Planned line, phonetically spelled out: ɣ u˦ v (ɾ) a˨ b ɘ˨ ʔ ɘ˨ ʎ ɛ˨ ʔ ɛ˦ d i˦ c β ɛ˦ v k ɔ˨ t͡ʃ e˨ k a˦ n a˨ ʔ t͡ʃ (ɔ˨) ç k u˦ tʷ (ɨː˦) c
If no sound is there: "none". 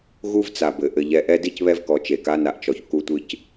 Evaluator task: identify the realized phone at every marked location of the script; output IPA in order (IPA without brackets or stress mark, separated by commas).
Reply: t͡s, ɔ˨, ɨ˦